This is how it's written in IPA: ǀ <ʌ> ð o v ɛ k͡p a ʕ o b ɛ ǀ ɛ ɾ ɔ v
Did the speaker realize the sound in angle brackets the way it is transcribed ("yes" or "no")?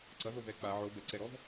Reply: yes